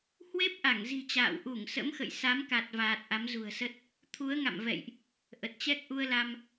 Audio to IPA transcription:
hwe˦˥p̚ʔa˧˩ŋzi̤˨˩ t͡ɕa̰ː˧˨wʔu˧˩ŋsə̰˧˥mxə̰˧˨j sa˨˦mka˨˩t̚vaː˨˩t̚ ʔa˨˦mzṳ˨˩ə̯sə˦˥t̚ | t̪ʰu˨˦ə̯ŋa̰˧˨mvɛ̰˧˨jʔ | ʔə˨˩t̚t͡ɕɛ˦˥k̚ʔu˧ə̯la˧m

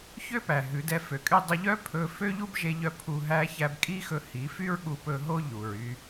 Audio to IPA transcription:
çø˦pæ˨ ɦʉ˨˦dɛ˧fø˨kʼy˦ dˤɵ˧ʎœ˦ pʰɵ˧fø˦ʎu˦b ʒe˦ʎœ˦ pʰu˧ɦæ˦ çæ˧bkʼi˦xɵ˧ hi˨˦fy˦ɹ ɠu˧pɵ˧ɦo˦ ʎu˨ɹy˧

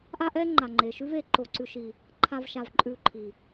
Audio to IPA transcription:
ʔa˦ ʔɛː˦ ŋ͡ǃa˨ŋ͡ǃeː˨ʃʉ˦veː˨ ǃo˨ǀʉ˨ʃi˨ | ǃʰa˧vʃa˨v ǃʼʉː˧ ǃʰi˨

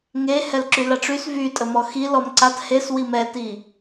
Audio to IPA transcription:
ŋe hɛlǁylaʈ͡ʂys vy tʼəmɔxi lɔmǀat hes wimɛti

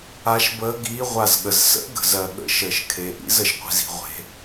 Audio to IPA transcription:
a˧˥ʃbəː˧˥ɡiː˧˥ ʁʷa˧˩zɠə˩z sə̰˧˥ɡə̤˩zɜ˩ ɠə̰˧˥ʃəː˩ʃkʰe˩ ʔḭ˧˥zə˩ʃqʷi̤˩zi̤˩ ʁʷe̤˩

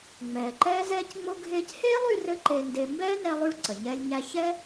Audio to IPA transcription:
ŋ͡mɛː˩ǃɛː˧zɛː˧cŋ͡mo˧ ɡʱeː˧cheː˥lˠy˧ rɘ˥ǃe˧nde˧ mbɛː˥nɛ˧lˠy˧ɭ ǀə˩ɲɛː˧lʲɲæ˧ çɛ˥

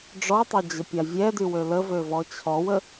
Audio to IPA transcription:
ɖ͡ʐɔtˤœd͡ʑəpʲa vʲɛdy wøləvøvɔ t͡ɕʰɔwə

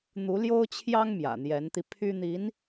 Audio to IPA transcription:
n̪u˧˥ljo˥ʊ̯t͡ɕʰjɑ˥ŋ mjä̰˨˩n̪jɛ˧˥nt̪i˧ pʰy˥n̪i˧˥n

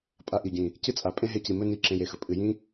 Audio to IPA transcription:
pʼa˧ʔi˨ɟĩ˨ | cɨ˦t͡sʼa˨ pʼẽ˦ɦe˧ci˨mɵ˦ ni˦˨ǁẽ˧je˨xɵ˨ pʼɨ˨jĩ˦

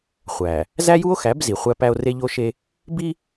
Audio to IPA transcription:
χʷæ˨ | zæ˦ju˦o̯xæ˨˦b zi˨χʷæ˦pæ˦o̯ re˦ʎo˦ʃe˦ | bi˦

